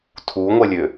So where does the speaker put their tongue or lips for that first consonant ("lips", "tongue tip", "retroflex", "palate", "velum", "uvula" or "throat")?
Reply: tongue tip